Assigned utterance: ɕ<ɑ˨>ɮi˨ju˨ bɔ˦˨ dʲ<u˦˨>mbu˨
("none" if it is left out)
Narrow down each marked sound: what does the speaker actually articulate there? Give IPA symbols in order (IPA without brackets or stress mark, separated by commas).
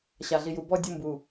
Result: a˨, u˦˨